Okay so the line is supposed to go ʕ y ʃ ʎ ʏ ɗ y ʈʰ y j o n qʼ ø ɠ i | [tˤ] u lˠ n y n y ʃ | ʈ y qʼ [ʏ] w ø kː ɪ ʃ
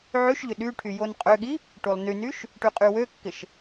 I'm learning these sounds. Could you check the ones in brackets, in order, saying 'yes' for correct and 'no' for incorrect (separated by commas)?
no, no